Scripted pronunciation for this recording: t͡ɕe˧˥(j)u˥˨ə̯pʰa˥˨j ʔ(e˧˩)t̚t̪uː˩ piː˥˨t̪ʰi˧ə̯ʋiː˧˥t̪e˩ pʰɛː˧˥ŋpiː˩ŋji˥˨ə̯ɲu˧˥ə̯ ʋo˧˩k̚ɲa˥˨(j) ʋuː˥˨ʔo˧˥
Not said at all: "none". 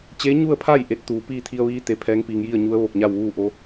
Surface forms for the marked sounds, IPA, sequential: ɲ, e˧˥, w

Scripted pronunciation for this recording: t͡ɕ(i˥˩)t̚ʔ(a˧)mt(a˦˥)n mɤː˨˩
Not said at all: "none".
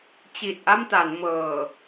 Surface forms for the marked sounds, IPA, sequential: i˨˩, a˥˩, a˩˦

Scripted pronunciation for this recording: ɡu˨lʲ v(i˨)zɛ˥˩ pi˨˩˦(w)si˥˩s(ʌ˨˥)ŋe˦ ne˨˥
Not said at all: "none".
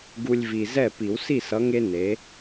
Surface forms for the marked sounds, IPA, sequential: i˨, w, ʌ˨˥

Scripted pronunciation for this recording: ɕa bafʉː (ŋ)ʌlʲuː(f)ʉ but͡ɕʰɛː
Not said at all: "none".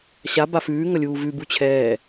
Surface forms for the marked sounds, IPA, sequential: ŋ, v

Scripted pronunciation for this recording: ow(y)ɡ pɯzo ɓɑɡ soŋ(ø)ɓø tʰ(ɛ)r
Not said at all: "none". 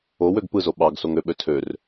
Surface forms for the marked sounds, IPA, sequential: ø, ø, ø

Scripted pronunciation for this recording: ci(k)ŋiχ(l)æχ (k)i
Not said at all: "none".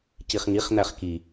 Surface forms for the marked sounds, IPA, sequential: χ, n̪, k

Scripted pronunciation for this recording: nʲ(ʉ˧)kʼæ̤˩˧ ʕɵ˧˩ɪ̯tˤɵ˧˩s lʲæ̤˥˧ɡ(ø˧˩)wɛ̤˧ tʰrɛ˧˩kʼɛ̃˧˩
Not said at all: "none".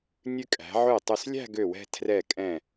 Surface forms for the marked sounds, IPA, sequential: ʉ˧, ø˧˩

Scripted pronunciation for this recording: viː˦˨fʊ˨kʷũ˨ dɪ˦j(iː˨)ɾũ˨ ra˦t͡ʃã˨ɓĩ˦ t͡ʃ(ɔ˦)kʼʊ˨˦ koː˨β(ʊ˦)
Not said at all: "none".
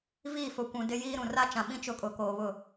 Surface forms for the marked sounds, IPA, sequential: iː˦, ʊ˦, ʊ˦˨

